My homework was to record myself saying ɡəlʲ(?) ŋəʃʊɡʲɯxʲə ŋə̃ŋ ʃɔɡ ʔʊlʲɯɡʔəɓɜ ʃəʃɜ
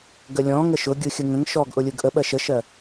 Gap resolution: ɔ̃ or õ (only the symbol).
ɔ̃